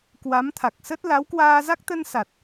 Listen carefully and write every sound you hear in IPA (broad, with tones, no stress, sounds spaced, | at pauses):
k w a˨˦ m t̪ʰ a˨˩ k̚ s ə˦˥ t̚ l a˨˦ w k w aː˧ z a˦˥ k̚ t̪ ə˧ n s a˨˩ t̚